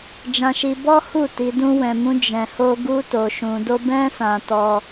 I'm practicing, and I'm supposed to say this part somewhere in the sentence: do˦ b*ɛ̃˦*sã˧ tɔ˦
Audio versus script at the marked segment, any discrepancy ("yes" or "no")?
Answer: no